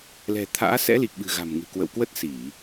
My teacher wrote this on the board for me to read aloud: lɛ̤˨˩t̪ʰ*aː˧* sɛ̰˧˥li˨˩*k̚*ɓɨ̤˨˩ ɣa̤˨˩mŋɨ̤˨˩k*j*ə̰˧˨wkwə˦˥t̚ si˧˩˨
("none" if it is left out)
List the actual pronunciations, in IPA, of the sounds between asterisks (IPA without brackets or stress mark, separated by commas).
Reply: a̰ː˧˥, k̚, w